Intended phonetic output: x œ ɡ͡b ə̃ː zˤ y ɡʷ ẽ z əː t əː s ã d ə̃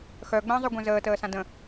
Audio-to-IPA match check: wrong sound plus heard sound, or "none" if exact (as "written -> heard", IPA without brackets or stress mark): none